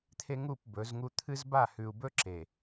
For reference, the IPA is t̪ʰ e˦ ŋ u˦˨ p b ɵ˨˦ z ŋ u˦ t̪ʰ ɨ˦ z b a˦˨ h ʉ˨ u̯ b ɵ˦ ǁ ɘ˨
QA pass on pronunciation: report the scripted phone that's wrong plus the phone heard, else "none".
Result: ɘ˨ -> e˨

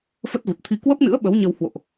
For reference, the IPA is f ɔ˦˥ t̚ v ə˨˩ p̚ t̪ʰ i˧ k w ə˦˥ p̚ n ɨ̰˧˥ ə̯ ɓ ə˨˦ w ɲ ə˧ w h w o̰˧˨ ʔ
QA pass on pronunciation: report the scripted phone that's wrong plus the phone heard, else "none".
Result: ɔ˦˥ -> ə˦˥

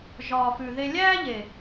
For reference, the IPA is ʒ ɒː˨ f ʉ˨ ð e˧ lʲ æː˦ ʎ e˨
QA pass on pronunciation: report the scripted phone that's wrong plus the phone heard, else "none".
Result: none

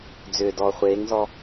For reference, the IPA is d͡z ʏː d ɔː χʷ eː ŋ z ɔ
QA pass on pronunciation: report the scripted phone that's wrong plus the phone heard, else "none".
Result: none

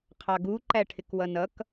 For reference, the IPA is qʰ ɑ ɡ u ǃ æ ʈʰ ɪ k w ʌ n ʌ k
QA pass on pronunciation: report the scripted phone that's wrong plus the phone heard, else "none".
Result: none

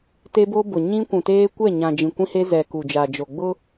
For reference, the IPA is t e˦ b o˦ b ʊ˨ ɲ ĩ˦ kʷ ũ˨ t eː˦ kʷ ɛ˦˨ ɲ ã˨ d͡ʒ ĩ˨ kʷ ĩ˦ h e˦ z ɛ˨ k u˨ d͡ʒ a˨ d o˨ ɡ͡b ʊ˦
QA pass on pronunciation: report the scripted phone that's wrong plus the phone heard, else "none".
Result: d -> d͡ʒ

